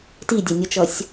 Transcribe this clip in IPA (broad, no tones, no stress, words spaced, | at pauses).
tidʲɛnʲʌt͡ʃʌsʲ